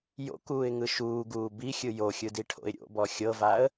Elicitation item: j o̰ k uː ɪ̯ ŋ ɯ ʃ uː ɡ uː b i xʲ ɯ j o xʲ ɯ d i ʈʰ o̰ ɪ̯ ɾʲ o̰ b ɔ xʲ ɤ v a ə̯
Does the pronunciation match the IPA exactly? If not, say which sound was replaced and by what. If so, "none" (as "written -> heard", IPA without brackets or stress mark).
none